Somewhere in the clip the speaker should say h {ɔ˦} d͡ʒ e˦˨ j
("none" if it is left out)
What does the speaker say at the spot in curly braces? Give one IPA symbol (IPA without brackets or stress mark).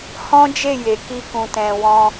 ɔ̃˦